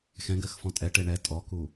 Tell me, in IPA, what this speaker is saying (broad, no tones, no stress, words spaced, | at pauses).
xɛ̃ɡɜxfɔ̃ tʼɛʈe ɳɛ tʼɔku